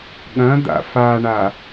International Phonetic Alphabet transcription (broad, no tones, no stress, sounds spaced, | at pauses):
ɠ ɐ̃ d̪ a̰ f a ɳ a